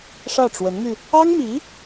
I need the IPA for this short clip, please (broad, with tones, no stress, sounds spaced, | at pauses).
ʂ ä˥˩ ʈ͡ʂ w ə˧˥ n m y˧ | ɑ˥ ŋ m i˧˥